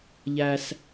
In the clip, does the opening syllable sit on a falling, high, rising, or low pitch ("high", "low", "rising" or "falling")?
low